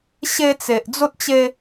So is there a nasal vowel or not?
no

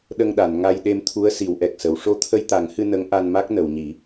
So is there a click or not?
no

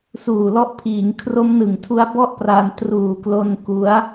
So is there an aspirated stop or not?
yes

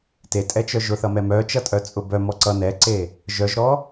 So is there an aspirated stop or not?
no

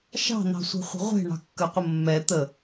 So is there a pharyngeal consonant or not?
no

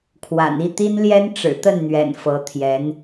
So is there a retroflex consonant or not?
yes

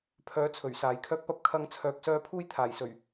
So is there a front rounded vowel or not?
yes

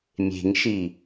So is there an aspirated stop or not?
no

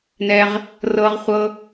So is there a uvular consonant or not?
yes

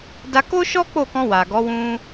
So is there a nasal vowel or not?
yes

